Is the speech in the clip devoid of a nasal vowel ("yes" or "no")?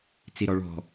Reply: yes